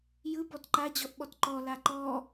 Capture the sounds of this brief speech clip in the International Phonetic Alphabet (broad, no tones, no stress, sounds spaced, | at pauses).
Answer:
j ɯ b ɔ t ǃ a d͡ʑ ɔ ʔ ɓ ɔ t ǃ ɔ l a ǃ ɔ